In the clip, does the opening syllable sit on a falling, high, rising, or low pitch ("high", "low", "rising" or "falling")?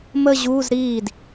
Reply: falling